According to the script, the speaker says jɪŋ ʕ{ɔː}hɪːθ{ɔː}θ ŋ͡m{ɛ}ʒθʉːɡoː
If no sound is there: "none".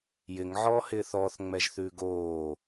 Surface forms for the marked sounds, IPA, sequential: ɔː, ɔː, ɛ

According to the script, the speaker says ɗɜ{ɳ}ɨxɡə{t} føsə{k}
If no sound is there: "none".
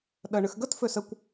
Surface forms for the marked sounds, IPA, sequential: ɳ, t, kʷ

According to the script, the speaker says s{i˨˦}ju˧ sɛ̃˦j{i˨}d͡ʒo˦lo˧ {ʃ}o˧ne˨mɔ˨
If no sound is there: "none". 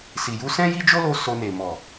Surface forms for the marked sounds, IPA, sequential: i˨, i˦, s

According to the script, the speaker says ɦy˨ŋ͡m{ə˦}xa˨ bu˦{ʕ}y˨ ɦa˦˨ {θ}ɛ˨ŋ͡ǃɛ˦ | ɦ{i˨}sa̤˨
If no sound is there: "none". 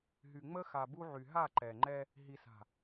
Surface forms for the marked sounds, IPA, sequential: ə˦, ʕ, ǃ, i˨

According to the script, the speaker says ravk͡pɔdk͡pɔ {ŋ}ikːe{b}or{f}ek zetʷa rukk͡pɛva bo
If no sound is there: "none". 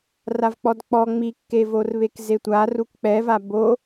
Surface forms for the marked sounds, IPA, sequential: ŋ͡m, v, β

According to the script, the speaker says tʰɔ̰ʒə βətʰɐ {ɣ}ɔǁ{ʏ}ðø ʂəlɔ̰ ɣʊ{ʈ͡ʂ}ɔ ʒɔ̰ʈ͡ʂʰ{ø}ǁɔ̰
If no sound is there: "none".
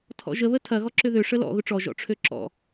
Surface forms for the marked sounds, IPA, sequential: ɣ, ʏ, ʈ͡ʂ, ø

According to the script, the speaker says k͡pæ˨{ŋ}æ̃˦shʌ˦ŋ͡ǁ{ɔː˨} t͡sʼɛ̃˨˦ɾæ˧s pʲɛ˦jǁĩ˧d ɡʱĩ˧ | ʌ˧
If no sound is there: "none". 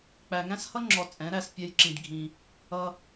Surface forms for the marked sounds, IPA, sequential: ŋ, ɔ˨

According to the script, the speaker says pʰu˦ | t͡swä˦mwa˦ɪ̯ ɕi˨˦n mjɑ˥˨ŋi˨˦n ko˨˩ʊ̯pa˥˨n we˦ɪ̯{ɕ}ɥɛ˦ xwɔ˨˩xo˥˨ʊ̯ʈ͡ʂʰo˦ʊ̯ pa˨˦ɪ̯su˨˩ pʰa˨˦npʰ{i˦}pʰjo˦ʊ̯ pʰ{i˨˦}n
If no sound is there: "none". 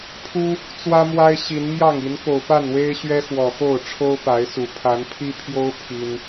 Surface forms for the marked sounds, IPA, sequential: ɕ, i˦, i˦

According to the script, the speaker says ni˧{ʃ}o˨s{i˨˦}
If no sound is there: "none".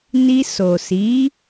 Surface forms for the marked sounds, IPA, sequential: s, i˨˦

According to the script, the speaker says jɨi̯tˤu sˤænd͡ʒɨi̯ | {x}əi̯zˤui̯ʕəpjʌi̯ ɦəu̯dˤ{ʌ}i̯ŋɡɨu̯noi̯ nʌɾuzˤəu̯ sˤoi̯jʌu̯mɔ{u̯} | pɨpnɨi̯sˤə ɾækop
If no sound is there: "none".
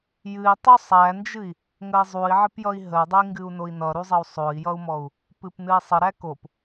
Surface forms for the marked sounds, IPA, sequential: ŋ, ə, u̯

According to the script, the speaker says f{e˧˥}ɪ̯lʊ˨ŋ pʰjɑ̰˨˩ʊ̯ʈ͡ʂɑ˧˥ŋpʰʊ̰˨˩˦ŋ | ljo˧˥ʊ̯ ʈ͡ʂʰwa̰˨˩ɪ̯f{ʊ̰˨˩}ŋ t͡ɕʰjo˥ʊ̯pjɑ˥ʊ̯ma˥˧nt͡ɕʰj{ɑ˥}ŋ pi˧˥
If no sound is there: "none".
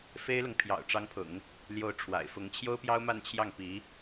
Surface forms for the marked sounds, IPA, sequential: e˥, ʊ˧˥, ɑ˥˩

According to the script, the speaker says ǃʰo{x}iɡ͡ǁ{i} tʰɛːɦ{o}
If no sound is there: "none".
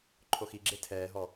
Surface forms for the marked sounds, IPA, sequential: x, e, ɔ

